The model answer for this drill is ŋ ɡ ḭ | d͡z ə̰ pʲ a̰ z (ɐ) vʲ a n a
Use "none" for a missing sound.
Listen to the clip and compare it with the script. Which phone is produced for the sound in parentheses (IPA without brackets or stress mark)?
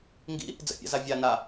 a